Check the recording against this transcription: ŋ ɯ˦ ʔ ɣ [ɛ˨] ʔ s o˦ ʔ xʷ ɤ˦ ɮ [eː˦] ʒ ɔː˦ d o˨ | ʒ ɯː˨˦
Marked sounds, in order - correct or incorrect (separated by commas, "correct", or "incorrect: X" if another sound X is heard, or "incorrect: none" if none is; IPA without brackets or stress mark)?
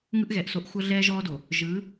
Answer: correct, incorrect: ɛː˦